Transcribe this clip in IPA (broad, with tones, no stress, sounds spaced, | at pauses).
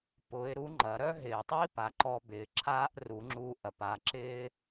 p ʊ˧˥ ɪ̯ ɾ u˧˥ ŋ͡ǃ ɐ˩˧ ɾ œ˥ ɦ ɪː˩ tˤ i˥ p a˩˧ ǃ ɔ˧ b ɪː˩ ǁʰ aː˥ ʔ r u˩˧ ŋ͡ǁ u˧ ʔ ɐ˩ p a˩˧ ǁ ɪː˥